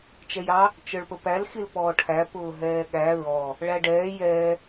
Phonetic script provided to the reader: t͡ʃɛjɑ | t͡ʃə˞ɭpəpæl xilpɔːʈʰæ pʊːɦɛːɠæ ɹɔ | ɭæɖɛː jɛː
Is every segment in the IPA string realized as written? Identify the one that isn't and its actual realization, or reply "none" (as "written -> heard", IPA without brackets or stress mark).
none